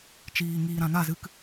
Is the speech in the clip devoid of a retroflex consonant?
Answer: yes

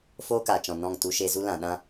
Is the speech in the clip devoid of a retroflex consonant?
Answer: yes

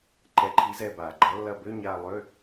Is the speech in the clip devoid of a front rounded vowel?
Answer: no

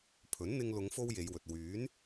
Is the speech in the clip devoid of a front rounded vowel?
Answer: no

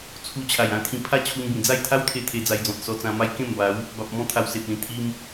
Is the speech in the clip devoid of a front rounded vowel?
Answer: yes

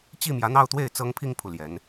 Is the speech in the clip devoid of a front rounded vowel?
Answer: yes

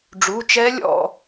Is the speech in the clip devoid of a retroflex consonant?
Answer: no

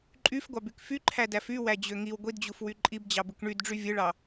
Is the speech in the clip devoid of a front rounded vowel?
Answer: no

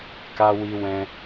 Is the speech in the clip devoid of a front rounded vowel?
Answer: yes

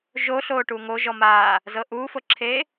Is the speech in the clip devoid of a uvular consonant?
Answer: yes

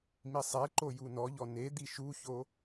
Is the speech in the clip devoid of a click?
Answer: no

